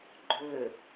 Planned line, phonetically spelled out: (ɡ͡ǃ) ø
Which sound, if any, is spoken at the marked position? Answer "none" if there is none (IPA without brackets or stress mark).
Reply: ɡ͡ǃ